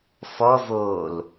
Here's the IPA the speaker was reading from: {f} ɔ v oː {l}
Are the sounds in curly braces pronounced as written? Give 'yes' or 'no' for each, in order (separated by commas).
yes, yes